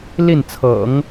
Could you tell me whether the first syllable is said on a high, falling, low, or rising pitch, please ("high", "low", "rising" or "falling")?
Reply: falling